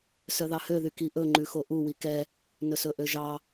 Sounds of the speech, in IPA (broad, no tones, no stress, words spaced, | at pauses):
sœðɑhøðy kiʔɵ ŋ͡ǃʉxoʔu wikɛ | nɵsɵʔøʒɑ